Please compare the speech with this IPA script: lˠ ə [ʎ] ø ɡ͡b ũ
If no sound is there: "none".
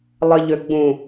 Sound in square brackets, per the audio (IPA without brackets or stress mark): ʎ